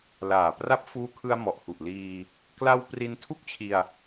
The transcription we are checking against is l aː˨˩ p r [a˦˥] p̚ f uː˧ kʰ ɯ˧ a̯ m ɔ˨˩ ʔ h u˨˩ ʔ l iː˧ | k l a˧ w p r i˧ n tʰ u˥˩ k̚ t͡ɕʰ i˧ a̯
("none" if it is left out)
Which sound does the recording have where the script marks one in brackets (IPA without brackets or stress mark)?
a˦˥